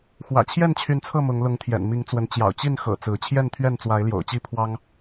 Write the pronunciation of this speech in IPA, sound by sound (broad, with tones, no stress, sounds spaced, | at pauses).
x w ä̰˨˩ t͡ɕʰ j ɛ˥˨ n t͡ɕʰ y˨˦ n t͡sʰ ɤ˥˨ m ʊ˨˦ ŋ l ʊ˨˦ ŋ t̪ʰ j ɛ̰˨˩ n m i˨˦ ŋ t͡s w ə˨˦ n t͡ɕ j ɑ̰˨˩ ʊ̯ t͡ɕ i˥˨ n x ɤ̰˨˩ t͡s ɹ̩˨˦ t͡ɕʰ j ɛ˥˨ n t̪ʰ ɥ ɛ˥˨ n t͡s w a˨˦ ɪ̯ l j o̰˨˩ ʊ̯ t͡ɕ i˥˨ pʰ w ɑ˦ ŋ